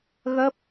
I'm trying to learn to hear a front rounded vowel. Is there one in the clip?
no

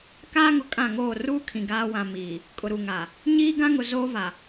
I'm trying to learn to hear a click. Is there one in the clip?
no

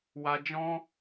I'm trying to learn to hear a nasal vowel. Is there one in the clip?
yes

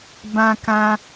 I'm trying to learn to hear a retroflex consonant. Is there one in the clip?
no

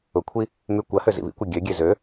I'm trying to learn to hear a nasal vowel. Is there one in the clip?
no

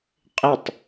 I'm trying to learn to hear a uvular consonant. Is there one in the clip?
yes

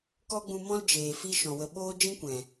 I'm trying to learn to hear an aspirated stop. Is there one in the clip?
no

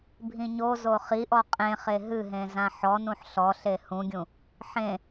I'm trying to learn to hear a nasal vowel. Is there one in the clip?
yes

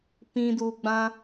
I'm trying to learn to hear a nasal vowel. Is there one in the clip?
yes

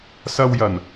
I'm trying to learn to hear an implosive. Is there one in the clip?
no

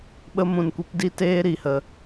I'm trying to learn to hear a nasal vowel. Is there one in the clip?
yes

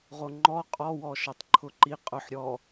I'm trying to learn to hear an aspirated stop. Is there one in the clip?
yes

